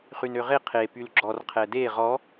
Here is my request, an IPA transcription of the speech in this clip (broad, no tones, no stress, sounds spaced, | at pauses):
χ y n ø ʁ e qʰ e p y l ɡ͡ǁ ɔ r qʰ ɛ d e ʁ ɔ